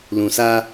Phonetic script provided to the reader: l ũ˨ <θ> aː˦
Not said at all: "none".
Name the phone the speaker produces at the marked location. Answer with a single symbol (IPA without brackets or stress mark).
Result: s